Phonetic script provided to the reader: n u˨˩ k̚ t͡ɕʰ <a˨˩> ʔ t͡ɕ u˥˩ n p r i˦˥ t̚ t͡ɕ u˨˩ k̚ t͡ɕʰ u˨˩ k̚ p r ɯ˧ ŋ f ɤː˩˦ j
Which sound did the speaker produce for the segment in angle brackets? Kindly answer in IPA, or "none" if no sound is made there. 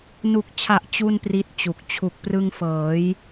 a˨˩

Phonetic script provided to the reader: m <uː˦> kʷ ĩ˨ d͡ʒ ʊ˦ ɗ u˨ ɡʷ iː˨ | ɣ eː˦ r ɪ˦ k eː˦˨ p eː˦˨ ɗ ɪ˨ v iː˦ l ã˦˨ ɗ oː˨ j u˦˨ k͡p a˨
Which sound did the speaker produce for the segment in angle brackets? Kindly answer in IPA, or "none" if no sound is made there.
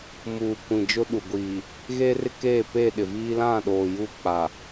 uː˨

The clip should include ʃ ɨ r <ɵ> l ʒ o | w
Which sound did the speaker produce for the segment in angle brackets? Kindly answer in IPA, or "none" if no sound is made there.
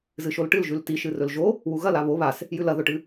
ɵ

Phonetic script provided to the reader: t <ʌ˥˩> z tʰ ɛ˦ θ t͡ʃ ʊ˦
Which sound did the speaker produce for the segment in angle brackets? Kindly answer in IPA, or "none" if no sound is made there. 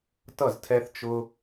ʌ˥˩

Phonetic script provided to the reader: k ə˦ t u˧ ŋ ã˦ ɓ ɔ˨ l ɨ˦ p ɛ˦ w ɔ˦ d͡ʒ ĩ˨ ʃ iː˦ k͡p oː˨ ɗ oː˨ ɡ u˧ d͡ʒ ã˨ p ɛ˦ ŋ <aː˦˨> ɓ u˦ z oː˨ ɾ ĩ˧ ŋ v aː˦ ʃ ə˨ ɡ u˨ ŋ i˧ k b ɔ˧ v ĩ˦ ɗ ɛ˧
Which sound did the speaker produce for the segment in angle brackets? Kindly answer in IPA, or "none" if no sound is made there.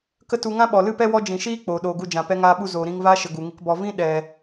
aː˦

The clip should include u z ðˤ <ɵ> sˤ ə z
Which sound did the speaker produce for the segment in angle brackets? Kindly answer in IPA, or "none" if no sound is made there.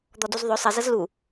ɵ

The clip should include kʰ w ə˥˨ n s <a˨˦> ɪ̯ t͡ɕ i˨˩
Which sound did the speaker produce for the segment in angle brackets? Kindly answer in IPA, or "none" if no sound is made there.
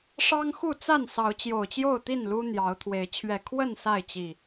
a˥˨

